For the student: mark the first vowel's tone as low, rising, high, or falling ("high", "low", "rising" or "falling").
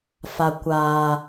low